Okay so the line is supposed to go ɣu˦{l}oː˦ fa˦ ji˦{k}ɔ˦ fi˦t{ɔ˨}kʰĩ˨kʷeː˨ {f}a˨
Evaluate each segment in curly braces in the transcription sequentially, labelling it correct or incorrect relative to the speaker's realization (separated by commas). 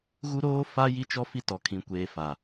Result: incorrect, incorrect, correct, correct